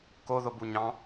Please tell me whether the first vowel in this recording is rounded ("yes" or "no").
yes